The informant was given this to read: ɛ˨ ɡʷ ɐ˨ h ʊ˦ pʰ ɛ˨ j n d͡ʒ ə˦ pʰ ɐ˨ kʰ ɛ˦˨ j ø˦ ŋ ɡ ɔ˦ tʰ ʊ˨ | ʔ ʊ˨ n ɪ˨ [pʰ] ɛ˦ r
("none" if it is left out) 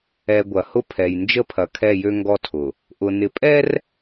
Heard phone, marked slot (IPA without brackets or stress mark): pʼ